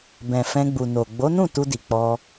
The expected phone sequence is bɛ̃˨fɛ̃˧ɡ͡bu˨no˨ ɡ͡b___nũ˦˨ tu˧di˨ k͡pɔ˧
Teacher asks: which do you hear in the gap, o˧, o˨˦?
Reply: o˨˦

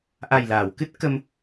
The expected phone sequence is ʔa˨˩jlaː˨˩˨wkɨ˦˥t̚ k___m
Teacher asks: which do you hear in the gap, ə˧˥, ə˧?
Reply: ə˧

